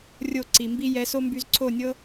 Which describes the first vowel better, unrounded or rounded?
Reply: rounded